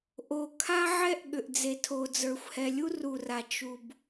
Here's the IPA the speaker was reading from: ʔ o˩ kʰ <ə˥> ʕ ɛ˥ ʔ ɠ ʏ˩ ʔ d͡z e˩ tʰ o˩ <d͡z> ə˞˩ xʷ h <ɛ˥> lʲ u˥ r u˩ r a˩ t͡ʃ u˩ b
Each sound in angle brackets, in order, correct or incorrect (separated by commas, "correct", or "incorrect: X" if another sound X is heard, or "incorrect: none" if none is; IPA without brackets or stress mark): incorrect: a˥, correct, incorrect: ɛ˩